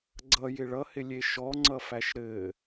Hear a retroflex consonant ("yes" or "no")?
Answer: yes